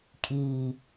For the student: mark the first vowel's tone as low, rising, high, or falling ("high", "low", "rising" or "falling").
low